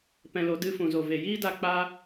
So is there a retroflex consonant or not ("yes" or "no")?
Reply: no